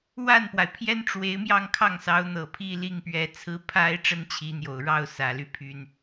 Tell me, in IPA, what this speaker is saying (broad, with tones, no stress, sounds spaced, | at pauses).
w a˥˩ n p w a˩ ɪ̯ pʰ j ɛ˥ n ʈ͡ʂ w e˧˥ ɪ̯ m j ɑ˥˧ ŋ kʰ ɑ˥˩ ŋ s ɑ˧˥ ʊ̯ n̪ ɤ˨˩ pʰ i˥˧ l i˥˩ ŋ p ɥ ɛ˧˥ t͡sʰ ɹ̩˥ pʰ a˥ ɪ̯ ʈ͡ʂ ə˥ n t͡ɕʰ i˧˥ n̪ j o˨˩ ʊ̯ ɻ ɑ˥˩ ʊ̯ s ä˨˩ l y˥ pʰ y˥ n